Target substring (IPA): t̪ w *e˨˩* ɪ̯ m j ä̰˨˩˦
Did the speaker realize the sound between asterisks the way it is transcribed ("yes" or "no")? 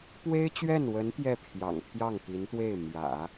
no